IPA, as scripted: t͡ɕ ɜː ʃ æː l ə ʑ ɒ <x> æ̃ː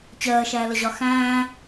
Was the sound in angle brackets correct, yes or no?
yes